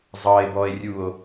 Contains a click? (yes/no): no